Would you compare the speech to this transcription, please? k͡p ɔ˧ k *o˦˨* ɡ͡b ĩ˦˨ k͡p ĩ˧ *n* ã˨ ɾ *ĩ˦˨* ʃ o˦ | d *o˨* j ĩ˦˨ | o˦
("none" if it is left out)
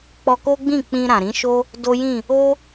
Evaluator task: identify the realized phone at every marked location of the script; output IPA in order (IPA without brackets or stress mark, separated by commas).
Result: o˦, ɾ, ĩ˨˦, o˦